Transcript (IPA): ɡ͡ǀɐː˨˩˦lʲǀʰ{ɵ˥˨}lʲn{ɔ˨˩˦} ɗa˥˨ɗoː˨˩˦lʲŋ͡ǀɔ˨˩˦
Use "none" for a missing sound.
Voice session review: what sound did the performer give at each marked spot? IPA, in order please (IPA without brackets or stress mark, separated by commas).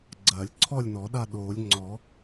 ɔ˥˨, ɔ˨˩˦